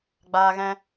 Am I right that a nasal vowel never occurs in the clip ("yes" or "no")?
no